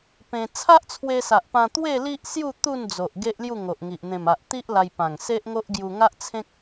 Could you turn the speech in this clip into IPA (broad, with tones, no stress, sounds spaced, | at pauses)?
p ẽ˧ t͡sʰ a˦ ʔ t͡sʰ w e˧ s a˨ ʔ p ã˧ t̪ w e˥˧ l i˦ ʔ s j u˥˧ t̪ u˥˧ n d͡z o˨ ʔ ɡ e˦ ʔ l j u˥˧ ŋ o˨ ʔ ŋ i˨ ʔ n̪ ẽ˨˩ m a˨ ʔ t̪ i˦ ʔ l a˧ j p ã˨˩ ŋ s e˦ ʔ ŋ o˦ ʔ ɡ j u˧ ŋ a˦ ʔ t͡sʰ ẽ˦ k̚